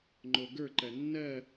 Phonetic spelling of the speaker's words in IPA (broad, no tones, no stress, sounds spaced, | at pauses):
ŋ͡ǃ o ɡ ə˞ ǃ ɜ nː ɜ